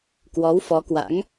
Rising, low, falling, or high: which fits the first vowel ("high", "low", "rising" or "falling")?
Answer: rising